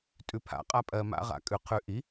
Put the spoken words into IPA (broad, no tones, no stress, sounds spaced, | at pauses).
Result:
tʼ ʉ pʰ a̰ qʼ a pʼ ɜ m a̰ ʁ a̰ kʼ ʉ qʰ ʉ ʔ i